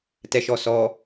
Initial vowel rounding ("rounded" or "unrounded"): unrounded